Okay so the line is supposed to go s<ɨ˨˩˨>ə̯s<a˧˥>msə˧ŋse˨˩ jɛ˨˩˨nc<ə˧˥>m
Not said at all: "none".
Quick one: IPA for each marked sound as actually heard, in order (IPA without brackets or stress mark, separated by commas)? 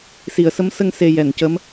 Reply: i˨˩˨, ə˧˥, ə˧˥